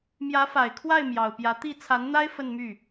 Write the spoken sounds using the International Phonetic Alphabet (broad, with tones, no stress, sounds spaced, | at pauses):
m j ä˧˥ f a˨˩ ɪ̯ kʰ w a˥˩ ɪ̯ m j ɑ˨˩ ʊ̯ p j ä˧˥ t̪ i˥˩ t͡sʰ a˧˥ n n̪ a˥ ɪ̯ f ə˥˧ n m y˥˩